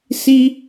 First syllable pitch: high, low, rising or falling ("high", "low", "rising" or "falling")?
high